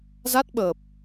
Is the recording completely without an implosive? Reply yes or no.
no